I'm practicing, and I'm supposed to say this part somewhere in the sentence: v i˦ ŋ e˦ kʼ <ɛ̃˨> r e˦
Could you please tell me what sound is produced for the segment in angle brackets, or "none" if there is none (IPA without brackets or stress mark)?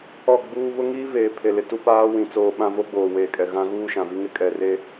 ɛ˨